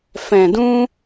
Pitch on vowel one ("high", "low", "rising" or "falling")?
low